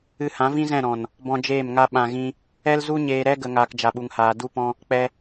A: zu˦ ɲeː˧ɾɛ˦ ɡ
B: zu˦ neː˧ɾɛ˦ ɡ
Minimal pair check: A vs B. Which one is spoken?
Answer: A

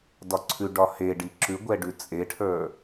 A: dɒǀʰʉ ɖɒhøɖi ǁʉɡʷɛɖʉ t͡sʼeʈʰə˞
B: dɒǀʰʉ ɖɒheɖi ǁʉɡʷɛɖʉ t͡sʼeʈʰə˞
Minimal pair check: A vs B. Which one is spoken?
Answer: B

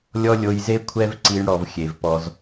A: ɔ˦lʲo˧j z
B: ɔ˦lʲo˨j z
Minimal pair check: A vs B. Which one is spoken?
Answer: A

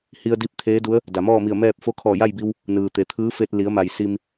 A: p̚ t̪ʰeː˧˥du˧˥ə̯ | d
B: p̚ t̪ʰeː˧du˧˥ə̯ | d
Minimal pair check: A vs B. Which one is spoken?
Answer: A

